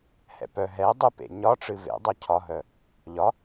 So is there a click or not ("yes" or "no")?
no